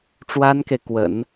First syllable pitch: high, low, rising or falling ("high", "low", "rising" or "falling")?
high